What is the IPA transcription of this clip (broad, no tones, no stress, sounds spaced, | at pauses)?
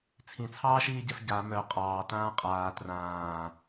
t͡sʰ ĩ t͡sʰ ɑː ʃ iː ɟ ɛ f ɟ a m œ qʼ ɑː t ãː qʼ aː t r ãː